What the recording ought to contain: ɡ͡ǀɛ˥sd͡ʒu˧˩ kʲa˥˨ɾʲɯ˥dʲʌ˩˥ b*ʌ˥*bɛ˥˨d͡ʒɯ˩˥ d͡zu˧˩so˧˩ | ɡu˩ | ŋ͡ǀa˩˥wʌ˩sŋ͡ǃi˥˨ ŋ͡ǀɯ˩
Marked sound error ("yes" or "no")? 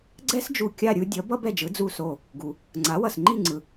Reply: no